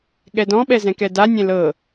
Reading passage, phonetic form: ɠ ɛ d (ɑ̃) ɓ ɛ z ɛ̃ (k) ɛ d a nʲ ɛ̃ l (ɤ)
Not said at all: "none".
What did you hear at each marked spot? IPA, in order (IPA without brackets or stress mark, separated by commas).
ɔ̃, k, ɤ